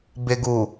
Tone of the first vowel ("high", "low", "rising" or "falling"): low